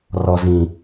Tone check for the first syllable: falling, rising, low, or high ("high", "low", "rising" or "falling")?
low